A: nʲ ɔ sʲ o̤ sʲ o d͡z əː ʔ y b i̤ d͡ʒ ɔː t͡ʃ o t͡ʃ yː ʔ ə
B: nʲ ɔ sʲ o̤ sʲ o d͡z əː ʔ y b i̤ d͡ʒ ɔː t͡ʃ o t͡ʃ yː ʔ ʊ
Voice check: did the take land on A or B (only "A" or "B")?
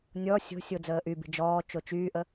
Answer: A